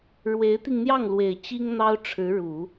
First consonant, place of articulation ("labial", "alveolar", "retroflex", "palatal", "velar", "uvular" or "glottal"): retroflex